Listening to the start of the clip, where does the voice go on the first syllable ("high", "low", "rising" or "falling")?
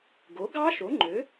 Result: rising